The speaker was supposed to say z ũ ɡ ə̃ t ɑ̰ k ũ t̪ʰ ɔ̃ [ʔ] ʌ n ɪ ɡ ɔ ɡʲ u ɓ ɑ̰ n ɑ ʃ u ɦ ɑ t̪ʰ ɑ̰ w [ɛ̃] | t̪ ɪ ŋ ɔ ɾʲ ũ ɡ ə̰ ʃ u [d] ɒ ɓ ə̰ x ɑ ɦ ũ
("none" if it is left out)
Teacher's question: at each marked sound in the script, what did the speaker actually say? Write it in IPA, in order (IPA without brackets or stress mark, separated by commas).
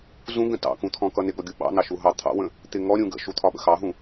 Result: k, ə̃, t̪ʰ